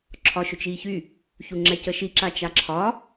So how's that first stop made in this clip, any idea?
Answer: click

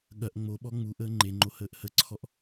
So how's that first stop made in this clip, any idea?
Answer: implosive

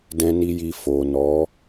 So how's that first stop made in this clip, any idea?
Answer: plain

